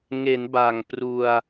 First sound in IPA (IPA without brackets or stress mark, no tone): ŋ